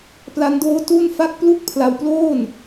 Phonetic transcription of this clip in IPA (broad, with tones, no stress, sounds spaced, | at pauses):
p l a˦˥ n d oː˦˥ t u˥˩ n f a˥˩ k̚ p l u˥˩ k̚ pʰ l a˧ w p l oː˥˩ n